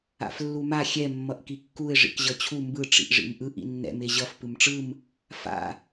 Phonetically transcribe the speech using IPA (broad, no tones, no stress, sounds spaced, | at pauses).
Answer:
a̰ f lː u m a xʲ ɛ mː ʌ ʔ k i kː u ɪ̯ ʐ ḭ k ʑ ʌ t͡ɕʰ u m b ɯ ʈ͡ʂ ḭ ʔ ʐ ḭ m ʔ ɯ ʔ ḭ nː ɛ̰ m e ʑ ʌ f p ɯ m ʈ͡ʂ ɯ m | f a̰